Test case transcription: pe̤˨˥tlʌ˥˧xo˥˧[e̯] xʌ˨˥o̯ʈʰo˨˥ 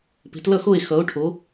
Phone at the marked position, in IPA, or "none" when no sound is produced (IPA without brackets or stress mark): e̯